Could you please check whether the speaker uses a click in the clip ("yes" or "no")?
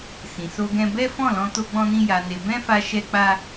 no